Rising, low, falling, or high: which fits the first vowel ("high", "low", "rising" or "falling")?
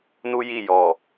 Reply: high